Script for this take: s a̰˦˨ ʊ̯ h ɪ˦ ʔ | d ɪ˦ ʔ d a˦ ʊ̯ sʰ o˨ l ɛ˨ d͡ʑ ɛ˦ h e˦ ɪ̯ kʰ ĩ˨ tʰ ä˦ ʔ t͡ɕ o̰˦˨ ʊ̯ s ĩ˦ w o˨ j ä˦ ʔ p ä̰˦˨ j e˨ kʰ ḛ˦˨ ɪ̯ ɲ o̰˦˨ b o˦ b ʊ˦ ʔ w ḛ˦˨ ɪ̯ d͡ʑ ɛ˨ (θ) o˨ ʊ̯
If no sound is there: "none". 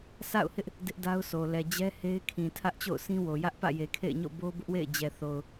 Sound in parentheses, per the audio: θ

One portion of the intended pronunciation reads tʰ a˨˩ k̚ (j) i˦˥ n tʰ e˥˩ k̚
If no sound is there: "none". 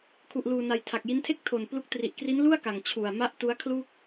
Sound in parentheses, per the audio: j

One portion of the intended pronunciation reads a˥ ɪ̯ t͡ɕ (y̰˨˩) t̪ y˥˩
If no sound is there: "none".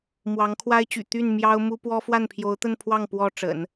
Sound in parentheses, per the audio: y̰˨˩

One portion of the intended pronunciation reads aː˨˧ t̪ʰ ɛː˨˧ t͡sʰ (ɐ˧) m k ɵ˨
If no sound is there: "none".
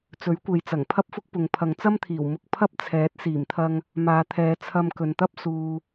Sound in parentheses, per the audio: ɐ˧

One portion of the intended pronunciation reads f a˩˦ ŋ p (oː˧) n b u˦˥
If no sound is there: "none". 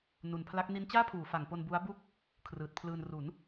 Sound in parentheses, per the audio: o˧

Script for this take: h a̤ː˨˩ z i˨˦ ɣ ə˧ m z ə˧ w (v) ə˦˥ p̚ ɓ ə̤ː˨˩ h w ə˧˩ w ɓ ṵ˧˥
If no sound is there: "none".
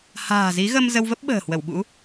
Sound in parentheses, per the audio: v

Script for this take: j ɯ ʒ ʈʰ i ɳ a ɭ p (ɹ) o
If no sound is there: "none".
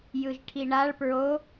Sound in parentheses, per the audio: ɹ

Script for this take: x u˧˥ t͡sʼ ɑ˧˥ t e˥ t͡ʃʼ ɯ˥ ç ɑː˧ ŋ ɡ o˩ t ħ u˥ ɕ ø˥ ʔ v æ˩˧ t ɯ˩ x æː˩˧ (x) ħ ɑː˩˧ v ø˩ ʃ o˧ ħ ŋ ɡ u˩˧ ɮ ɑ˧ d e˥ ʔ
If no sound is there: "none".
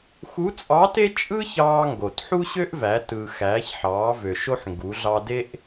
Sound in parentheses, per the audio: ç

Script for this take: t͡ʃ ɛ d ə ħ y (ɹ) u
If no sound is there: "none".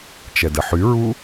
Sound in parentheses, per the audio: ɹ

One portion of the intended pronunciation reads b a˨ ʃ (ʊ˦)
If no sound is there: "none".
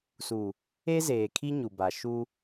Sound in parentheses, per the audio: u˦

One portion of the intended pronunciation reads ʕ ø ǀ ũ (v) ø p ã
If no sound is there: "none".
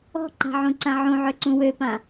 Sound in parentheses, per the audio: w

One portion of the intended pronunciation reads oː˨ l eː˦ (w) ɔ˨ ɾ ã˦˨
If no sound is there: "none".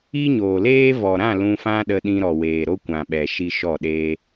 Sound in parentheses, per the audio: v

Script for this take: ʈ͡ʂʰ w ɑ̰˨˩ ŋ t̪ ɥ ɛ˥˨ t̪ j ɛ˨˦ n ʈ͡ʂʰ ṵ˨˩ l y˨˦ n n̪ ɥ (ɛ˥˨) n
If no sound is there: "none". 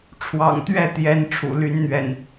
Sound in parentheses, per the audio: ɛ̰˨˩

